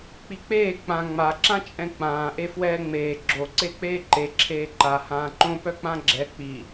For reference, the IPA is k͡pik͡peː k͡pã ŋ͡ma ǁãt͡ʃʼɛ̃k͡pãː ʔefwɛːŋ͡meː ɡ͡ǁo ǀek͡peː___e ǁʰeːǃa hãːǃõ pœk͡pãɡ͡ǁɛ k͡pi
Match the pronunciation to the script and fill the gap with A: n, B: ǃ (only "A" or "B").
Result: B